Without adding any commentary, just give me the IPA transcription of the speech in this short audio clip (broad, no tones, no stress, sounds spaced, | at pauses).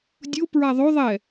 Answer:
dʲ ʊ p ɹ a ðˤ o ðˤ ɛ